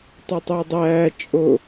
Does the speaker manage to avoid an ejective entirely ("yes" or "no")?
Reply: no